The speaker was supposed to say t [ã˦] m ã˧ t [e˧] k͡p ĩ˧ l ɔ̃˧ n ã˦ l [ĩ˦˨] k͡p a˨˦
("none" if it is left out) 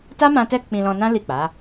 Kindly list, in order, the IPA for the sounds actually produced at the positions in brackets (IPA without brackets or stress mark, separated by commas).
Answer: a˦, ɛ˧, i˦˨